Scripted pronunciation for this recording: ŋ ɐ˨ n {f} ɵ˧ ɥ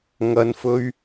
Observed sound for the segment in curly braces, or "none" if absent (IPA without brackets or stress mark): f